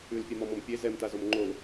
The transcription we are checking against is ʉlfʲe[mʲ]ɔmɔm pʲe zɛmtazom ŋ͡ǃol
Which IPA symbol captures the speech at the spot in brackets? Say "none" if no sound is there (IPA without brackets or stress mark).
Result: m